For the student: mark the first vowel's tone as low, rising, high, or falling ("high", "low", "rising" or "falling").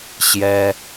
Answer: high